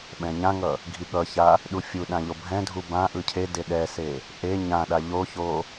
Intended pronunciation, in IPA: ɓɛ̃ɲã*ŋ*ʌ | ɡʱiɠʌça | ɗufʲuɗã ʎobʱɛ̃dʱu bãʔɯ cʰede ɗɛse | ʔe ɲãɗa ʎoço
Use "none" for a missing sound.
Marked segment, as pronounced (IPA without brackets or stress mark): ŋ